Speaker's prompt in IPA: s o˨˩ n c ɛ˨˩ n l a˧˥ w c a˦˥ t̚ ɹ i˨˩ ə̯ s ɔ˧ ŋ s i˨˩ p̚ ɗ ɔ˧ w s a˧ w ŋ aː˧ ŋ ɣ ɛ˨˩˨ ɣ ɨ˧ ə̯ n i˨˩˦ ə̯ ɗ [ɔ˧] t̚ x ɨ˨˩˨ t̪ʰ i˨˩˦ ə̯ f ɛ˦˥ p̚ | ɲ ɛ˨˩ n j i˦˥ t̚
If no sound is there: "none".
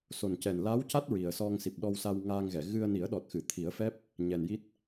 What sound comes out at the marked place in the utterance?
ɔ˨˩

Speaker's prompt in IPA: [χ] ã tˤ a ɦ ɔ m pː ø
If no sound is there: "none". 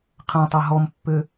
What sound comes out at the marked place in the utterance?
qʰ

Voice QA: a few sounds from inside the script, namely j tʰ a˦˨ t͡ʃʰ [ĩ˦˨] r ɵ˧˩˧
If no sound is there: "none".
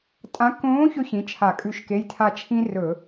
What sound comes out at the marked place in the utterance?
ĩ˥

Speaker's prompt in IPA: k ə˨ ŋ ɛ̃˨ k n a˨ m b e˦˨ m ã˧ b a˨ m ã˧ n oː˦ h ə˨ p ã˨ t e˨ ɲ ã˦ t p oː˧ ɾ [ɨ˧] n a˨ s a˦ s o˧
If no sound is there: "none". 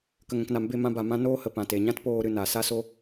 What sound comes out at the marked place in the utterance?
ɨ˧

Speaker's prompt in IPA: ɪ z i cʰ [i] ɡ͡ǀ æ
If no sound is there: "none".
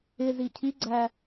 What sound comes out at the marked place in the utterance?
i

